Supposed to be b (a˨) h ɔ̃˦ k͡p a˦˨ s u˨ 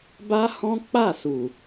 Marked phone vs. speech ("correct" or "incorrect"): incorrect